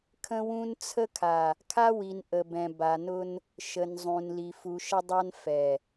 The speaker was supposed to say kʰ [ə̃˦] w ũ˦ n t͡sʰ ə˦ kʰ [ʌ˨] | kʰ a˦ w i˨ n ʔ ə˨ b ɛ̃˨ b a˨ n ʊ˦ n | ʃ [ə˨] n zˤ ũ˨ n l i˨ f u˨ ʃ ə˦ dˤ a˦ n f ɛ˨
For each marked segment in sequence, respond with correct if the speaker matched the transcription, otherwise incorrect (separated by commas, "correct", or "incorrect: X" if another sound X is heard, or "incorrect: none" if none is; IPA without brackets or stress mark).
correct, incorrect: a˨, correct